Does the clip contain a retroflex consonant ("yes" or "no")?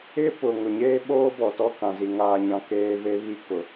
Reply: no